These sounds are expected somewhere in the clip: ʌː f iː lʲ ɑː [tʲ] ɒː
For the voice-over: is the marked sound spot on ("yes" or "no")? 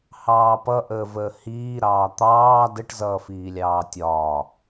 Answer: yes